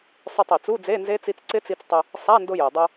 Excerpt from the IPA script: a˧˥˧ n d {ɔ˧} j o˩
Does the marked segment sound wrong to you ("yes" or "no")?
yes